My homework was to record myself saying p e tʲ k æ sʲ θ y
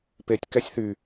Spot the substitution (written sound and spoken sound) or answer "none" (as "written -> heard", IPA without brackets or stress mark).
æ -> ɛ